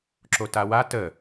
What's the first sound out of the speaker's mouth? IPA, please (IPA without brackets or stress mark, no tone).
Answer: ǁ